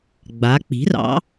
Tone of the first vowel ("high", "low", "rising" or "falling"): rising